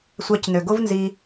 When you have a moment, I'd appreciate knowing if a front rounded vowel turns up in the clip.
yes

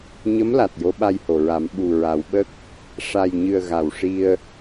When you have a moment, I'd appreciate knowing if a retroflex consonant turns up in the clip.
yes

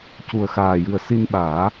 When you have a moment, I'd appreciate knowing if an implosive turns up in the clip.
yes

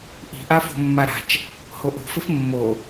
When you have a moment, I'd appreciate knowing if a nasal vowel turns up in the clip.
no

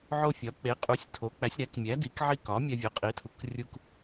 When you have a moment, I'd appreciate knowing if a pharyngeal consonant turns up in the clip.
yes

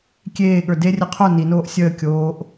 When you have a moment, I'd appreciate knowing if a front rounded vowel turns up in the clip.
no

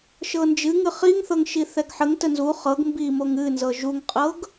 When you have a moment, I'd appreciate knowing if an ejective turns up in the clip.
yes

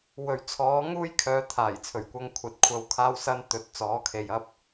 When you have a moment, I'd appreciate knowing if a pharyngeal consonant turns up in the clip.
no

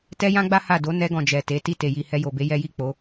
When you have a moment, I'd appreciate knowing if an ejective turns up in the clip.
no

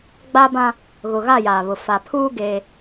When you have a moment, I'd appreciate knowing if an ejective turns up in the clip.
no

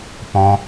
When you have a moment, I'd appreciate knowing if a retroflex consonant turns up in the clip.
no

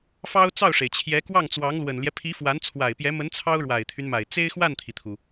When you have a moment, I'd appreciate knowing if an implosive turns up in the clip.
no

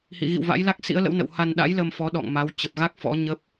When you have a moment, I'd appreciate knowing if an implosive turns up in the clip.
yes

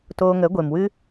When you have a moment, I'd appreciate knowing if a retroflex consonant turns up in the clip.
no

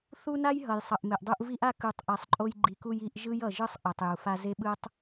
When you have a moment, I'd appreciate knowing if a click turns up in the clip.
yes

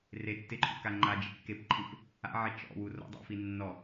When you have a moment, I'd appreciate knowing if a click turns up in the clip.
yes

